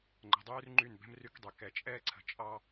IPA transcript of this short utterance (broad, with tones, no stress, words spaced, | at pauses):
ŋ͡ǃə̤˨dˤyː˦rŋ͡ǃy˦˨n bɛ̤˦m ry˦kdˤy˨ kɛ˨t͡ʃʼɛː˦ǀʰə̤˨ t͡ʃʼɑ˦